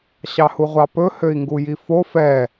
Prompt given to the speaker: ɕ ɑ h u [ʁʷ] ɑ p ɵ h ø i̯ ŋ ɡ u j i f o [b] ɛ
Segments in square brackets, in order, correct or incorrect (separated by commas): correct, incorrect